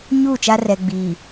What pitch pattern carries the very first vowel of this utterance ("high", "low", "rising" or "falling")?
falling